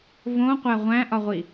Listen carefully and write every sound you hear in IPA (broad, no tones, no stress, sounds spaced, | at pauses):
v õ qʷ æ ʁʷ æ̃ ʔ ɒ ʁʷ i